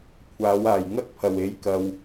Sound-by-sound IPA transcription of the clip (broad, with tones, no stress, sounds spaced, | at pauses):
kʷʰ aː˨˥ w aː˨˩ j ŋ ɐ˥ k̚ pʰ ɐ˨˩ w e˨˥ j k ɐ˨ w